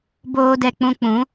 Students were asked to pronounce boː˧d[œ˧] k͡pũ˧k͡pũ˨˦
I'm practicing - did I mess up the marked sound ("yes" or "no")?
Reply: yes